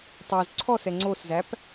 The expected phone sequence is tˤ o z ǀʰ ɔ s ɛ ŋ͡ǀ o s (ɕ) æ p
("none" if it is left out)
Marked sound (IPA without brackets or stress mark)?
z